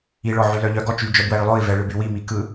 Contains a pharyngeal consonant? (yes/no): yes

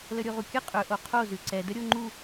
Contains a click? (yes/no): yes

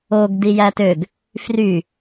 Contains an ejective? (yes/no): no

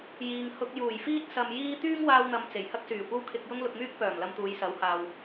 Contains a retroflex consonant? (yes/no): no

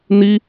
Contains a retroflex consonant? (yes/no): no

